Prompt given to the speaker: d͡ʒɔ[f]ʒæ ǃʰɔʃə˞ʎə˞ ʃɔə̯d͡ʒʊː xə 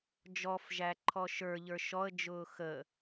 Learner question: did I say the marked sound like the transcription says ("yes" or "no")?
yes